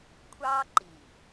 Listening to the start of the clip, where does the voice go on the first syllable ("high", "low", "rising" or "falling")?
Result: high